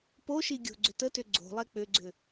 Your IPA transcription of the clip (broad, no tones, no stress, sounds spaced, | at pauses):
p o ʃ i ɡʲ o̤ ɡ͡ǀ ʏ t ə t ʏ ɡ͡ǀ o̤ lˠ ɛ k͡p ʏ ɡ͡ǀ ʏ